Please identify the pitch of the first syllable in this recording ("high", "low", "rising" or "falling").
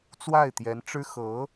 falling